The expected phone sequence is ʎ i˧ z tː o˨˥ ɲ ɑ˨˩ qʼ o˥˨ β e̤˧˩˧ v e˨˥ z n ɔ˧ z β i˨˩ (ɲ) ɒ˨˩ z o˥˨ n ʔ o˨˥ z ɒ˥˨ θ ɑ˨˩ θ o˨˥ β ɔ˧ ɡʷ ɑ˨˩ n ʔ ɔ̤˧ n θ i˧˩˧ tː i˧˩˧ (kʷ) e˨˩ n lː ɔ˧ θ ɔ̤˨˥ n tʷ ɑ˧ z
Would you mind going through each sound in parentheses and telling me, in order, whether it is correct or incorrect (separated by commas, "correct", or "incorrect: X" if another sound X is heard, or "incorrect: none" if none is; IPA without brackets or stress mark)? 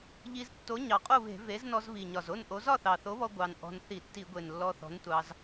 correct, incorrect: ɡʷ